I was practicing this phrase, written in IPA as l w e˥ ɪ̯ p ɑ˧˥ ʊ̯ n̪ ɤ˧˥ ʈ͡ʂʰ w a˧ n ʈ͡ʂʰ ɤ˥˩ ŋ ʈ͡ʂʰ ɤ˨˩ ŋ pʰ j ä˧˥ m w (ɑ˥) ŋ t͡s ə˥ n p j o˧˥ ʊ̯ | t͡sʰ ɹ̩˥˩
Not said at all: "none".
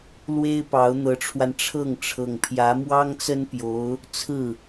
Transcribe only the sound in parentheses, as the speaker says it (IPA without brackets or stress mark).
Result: ɑ˥